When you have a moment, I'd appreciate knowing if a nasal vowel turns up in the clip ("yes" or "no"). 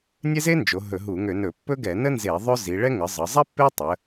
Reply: no